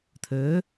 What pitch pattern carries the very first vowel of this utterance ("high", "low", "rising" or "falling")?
rising